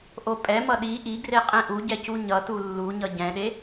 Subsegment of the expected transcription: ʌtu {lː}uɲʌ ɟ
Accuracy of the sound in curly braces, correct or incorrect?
correct